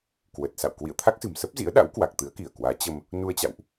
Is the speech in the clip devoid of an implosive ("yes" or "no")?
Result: no